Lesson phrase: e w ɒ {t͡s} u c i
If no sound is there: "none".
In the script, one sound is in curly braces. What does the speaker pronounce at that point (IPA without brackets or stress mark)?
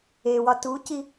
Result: t